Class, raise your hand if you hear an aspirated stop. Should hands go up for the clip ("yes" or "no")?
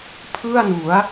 yes